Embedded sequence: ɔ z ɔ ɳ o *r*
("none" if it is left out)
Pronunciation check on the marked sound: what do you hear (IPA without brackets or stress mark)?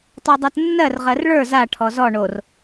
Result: r